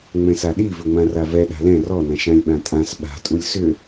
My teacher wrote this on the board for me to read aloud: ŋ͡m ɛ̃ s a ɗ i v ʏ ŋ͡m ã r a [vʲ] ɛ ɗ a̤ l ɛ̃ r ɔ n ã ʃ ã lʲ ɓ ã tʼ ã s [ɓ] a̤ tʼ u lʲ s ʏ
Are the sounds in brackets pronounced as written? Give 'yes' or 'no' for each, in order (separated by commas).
no, yes